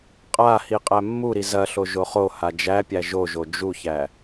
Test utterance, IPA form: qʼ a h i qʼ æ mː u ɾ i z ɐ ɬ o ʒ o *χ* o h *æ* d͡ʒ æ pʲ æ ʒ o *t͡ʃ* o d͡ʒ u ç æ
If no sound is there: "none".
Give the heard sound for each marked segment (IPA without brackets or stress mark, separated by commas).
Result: χ, a, ʒ